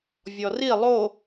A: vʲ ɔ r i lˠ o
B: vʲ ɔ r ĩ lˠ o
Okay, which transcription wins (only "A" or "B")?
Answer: A